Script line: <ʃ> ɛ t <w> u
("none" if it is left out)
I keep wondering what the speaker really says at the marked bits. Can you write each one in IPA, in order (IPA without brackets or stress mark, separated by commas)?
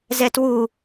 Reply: z, w